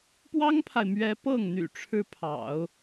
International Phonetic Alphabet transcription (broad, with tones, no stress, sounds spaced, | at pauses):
p w ɑ˥ ŋ pʰ a˨ ɪ̯ m ɥ ɛ˧˥ p ɤ˥˩ ŋ n̪ y̰˨˩ ʈ͡ʂʰ ɻ̩˥ pʰ ɑ̰˨˩˦ ʊ̯